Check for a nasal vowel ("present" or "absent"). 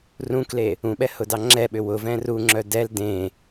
present